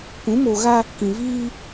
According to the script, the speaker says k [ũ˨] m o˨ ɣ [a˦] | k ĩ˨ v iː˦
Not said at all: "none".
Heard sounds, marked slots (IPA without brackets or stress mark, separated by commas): ũ˨˦, a˦